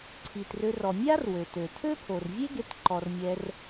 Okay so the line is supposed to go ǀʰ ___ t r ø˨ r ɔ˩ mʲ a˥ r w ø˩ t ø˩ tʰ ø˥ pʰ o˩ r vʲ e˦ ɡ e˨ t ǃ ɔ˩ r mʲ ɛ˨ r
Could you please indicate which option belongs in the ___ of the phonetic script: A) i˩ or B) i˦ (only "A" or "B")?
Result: A